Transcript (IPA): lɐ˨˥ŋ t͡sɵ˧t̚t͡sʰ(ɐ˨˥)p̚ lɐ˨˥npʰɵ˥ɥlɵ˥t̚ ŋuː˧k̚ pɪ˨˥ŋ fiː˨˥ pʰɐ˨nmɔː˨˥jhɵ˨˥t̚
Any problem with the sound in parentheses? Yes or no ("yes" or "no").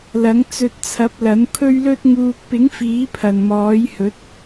no